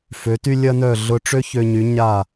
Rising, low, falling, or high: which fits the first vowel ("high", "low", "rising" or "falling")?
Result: rising